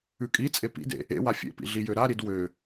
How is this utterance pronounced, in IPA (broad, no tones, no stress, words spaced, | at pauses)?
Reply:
ʉkʼit͡sʼe pḭdḛ | ḛwa fʲḛpḭ ɮijøɾaɾid wø